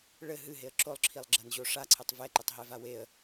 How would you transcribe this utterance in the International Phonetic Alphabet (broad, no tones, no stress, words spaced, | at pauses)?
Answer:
ɭɘ ɦɨɦeə̯ ǁolˠǁʰilˠɡ͡ǁɐnʑo ʂaǀʰɘtˤ vɛǃɘtˤɦɛva weə̯